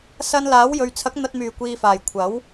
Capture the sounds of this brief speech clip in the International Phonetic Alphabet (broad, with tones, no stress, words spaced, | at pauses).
sɐ˧n laː˨˥w jɵ˨ɥt͡sʰɐ˨˥k̚ n̪ɐ˧t̚myː˨˩kʷiː˨faː˨˩j kʷʰɐ˨˥w